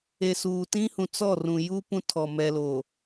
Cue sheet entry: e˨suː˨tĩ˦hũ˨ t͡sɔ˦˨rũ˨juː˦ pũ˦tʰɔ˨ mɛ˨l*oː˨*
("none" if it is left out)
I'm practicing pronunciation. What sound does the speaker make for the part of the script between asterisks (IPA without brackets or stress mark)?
oː˨